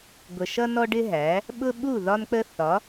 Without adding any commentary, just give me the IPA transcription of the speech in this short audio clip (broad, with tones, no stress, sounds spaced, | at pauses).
ɡʷ ə˨ ʃ ʌ˦ n ɔ˦ ɖ ɪ˦ ɦ æ˨˦ | ɓ ʊ˦ ɓ u˦˨ ð ɒ˦ n k͡p ə˦ θ ɒ˨˦